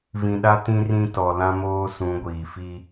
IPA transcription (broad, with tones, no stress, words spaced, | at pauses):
vĩ˨ɗa˦ tĩ˦rĩ˦tɔ˨ lã˦moː˦sũ˨˦ ɡʷiː˨ fi˦